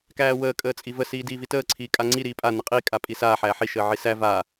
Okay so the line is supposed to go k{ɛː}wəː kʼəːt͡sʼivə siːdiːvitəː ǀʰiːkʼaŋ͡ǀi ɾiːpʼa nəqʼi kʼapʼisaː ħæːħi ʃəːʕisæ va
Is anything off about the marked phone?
yes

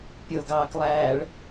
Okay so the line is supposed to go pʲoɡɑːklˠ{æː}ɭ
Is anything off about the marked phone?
no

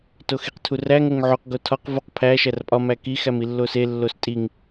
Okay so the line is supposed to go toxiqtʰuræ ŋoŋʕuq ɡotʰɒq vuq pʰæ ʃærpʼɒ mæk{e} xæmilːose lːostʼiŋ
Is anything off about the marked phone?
yes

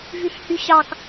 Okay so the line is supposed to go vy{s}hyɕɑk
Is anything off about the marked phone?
yes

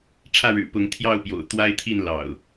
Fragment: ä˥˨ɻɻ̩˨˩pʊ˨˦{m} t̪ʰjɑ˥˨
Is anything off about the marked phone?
yes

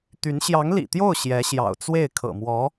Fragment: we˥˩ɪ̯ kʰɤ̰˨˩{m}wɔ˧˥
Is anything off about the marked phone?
no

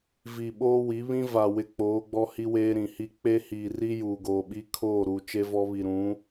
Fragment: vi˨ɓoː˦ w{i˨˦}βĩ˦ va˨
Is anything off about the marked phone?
no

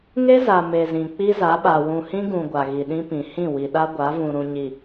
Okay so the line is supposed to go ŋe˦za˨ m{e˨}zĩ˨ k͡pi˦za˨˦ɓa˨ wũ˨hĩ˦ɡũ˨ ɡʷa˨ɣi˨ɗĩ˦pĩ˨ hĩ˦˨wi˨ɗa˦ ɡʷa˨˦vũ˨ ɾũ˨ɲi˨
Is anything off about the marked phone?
no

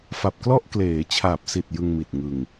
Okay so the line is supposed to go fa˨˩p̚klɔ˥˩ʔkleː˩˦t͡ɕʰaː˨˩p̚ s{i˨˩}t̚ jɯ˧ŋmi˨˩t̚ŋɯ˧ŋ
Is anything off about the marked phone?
no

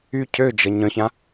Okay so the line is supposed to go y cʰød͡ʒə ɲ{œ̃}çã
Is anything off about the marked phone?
no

